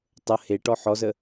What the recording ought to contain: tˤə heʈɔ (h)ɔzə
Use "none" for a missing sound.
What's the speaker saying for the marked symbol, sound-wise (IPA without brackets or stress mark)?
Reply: ħ